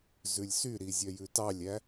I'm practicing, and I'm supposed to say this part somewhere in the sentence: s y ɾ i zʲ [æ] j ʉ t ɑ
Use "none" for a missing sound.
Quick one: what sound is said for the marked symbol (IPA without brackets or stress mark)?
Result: œ